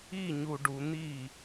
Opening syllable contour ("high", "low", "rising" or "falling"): falling